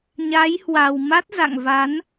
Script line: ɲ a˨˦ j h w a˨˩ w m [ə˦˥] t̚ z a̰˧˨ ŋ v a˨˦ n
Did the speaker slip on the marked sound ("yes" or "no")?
yes